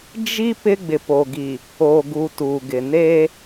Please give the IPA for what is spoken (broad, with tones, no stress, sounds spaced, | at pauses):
d͡ʒ i˦ p ɪ˦ ɡ͡b ɪ˨ p o˨ ɡ i˨ | o˨ ɡ u˨ t u˨ ɡ ɪ˨ n e˦